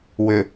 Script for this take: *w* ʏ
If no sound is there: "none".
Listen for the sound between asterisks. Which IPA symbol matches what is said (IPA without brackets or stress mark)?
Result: w